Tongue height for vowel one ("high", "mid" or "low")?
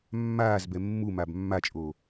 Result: low